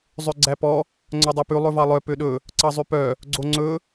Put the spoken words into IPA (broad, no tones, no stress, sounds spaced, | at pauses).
zˤ ø ɡ͡ǀ æ p ɔ | ŋ͡ǀ œ dˤ e p ʉ lˠ ɵ v ɑ lˠ œ p ø ɗ ɵ | ǀ ɑ zˤ ʉ p œ | ɡ͡ǀ o ŋ͡ǀ ɵ